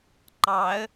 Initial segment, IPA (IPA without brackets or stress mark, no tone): ǃ